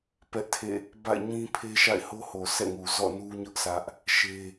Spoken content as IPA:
p ɛ˦ ʔ tʰ ḛ˦˨ | b a̰˦˨ ɪ̯ ɲ ĩ˦ pʰ e˦ ʃ a̰˦˨ ɪ̯ h o˦ h o˨ sʰ ɛ̰˦˨ ŋ u˨ z ɔ̰˦˨ n u˦ ɲ ʊ˦ ʔ s ä˦ ʔ | ʃ e˦

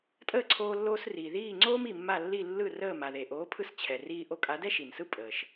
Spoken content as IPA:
tʼ əː˥˩ ǀʰ oː˧ lː oː˧ s r iː˩ ð iː˥˩ ŋ͡ǀ oː˥ m i˩ mː a˥˩ lː i˥˩ lː ɯ˥˩ r əː˥˩ m a˩ ð e˩ ʔ oː˩˥ pʰ ɯ˧ s t͡ɕʰ ɛ˩ r iː˧ ʔ o˧ kʼ a˩˥ d ɛ˥ ʃ i˩ n s ɯ˥ pʼ əː˩ ʃ

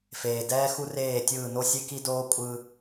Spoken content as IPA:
f eː˨ d ɛː˦ x u˦ r eː˦˨ tʲ ɯː˦˨ n o˦ sʲ e˦ k i˦ d oː˦ kʷʼ ɯ˦

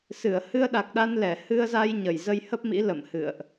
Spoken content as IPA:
s ɨ˧˩ ə̯ h ɨ˧ ə̯ ɗ a˨˩ k̚ ɗ a˧ n l ɛ˧˩ h ɨ˧ ə̯ z a˧ j ɲ ə˧˩ j z ə˧ j h ə˦˥ p̚ m ḭ˧˥ l ə̰˧˨ m h ɨ̰˧˨ ə̯ ʔ

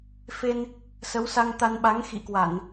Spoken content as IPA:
f e˧ n | s ə˨˦ w s a˧ ŋ t̪ a˧ n ɓ a˨˦ ŋ x ḭ˧˨ k w a˧˩˨ n

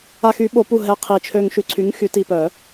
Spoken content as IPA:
a˧ x y˩˥ ɓ o˨˩˦ p u˧˩ ɦ ɛ˧˩ qʰ i˧˩ t͡ʃʰ ø˧ ŋ ʃ y˩˥ ǀʰ y˩˥ ŋ x y˩˥ t i˧˩ p œ˨˩˦

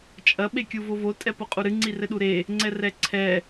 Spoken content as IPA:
t͡ʃʼ ɐ ɓ e kʲ u v o v o tʼ ɛ p o qʼ u ɾ ɨ ŋ͡ǀ i r ɘ ɗ u ɾ e | ŋ͡ǀ ɛ r ɛ ǀʰ ɛ

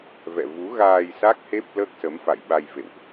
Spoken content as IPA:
v ɛ̰˧˨ v u˨˦ ɣ aː˧ j s a˦˥ k̚ h e˦˥ p̚ l əː˦˥ k̚ s ə˨˦ m f a̰˧˨ j ɓ a˧ j v ḛ˧˨ w ʔ

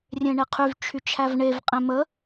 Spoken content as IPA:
rʲ ẽ ɳ e qʰ y v t͡ʃʰ y t͡ʃʰ æ v ɳ e v qʼ ẽ m ə

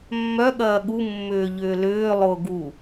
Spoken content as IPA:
mː œ ɠ ɐː ɠ u mː ʏː ʎ ʏː l ʏː lˠ ʊː ɡ u

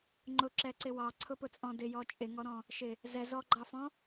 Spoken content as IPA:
ŋ͡ǃ ʊ ǁ ɛ ǀ ɪ w ɑ ǀʰ ʊ p ʊ t͡sʼ ɔ̃ d ɪ j ɔ t͡ʃʼ ɪ ŋ ɔ ɾ ɔ̃ | ʃ ɪ | z ɛ z ɔ ɡ͡ǃ ɑ f ɔ̃

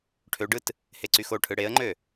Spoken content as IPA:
ʈʰ ø ɖ ɯ t | h e ǀ y x o ʈʰ ɯ ɽ e ə̯ ŋ͡ǃ ø

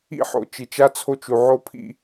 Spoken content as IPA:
ḭ˦ ħ o̰˨ t͡ʃ i˨ t͡ʃ a˦ t͡sʰ o˦ t͡ʃ u˨ ʕ o˦ pʰ ḭ˦˨

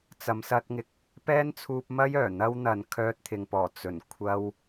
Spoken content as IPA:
t͡s ɐ˨˧ m s ɐ˧ t̚ ŋ ɪ˨ k̚ | p ɛː˥ n t͡sʰ uː˧ p̚ m ɐ˥ j œː˨˩ n̪ ɐ˥ w n̪ ɐ˨ n kʰ œː˧ t̚ t̪ʰ ɪ˨ ŋ p ɔː˨˩ t͡s ɵ˨˩ n kʷʰ ɐ˧ w

